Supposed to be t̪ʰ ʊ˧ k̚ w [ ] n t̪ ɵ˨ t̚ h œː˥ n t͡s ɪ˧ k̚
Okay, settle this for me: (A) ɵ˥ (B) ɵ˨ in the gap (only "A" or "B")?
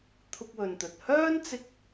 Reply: B